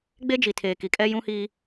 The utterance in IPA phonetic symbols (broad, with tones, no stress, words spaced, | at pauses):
ɡ͡be˦ d͡ʒi˨tʰeː˨ ki˨kʼɛ˦ jũ˦hi˦